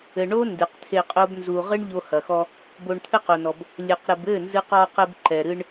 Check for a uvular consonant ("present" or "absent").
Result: present